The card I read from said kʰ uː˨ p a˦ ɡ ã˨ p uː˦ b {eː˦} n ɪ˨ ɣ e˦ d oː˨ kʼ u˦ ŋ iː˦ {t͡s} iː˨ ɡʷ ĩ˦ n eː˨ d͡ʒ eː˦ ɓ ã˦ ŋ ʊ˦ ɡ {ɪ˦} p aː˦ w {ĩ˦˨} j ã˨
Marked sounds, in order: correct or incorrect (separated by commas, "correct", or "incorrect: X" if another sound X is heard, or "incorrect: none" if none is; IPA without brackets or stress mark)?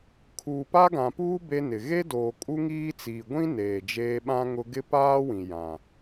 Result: incorrect: e˦, correct, correct, incorrect: ĩ˨